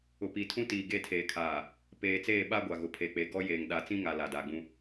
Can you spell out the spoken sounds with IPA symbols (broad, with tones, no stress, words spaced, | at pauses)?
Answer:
ʊ˨pi˨tʰũ˦ tiː˨ɡe˦˨tʰeː˨kʰaː˨ | peː˨ t͡seː˦˨ɓaː˦ɡʷa˨ ɣʊ˨pʰe˨ k͡pe˨ɡɔ˦ jeː˨ŋɗa˨˦ t͡sĩ˦ŋa˨ la˨da˨ɡ͡bũ˦